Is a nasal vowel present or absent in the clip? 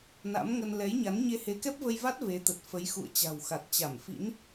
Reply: absent